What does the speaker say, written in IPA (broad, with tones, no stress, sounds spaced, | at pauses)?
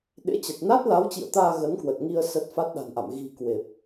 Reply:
ɗ ḛ˧˥ t͡ɕ ə˨˩ t̚ n a˦˥ t̚ l a˨˦ w t͡ɕ ḭ˧˨ ə̯ t̪ aː˧ ɣ ə˨˦ n k w ə˨˩ t̚ ŋ i˧ ə̯ s ə˦˥ t̚ f a˦˥ t̚ ɗ a̤˨˩ n ʔ a̰˧˨ m ɣ i̤˨˩ k w e˨˩ p̚